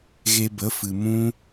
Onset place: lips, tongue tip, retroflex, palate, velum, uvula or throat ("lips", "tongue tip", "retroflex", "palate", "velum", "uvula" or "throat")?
velum